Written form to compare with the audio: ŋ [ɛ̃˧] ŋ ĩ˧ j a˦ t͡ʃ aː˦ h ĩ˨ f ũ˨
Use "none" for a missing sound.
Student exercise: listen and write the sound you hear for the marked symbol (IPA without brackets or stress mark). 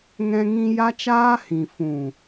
ɛ̃˧